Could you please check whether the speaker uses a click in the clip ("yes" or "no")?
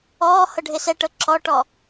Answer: yes